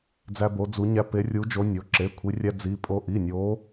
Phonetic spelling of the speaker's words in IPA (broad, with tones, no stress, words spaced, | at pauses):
d͡zæ˦bo˨˦d͡zu˨˦ɲæ˦ pe˨˦rʲu˨˦ d͡ʒo˨˦nʲo˩˧˩ ǁe˩˧˩kʷʰi˨˦rʲæ˦ d͡zi˨˦ pʼo˨˦ʔi˩˧˩nʲo˨˦